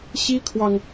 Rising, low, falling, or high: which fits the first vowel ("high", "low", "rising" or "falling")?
high